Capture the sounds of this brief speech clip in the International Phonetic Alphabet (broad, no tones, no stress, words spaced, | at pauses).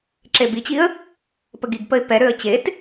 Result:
ǁebit͡ɕiə̯ | pəɡiɡpəɪ̯ pɛɾøə̯ t͡ɕet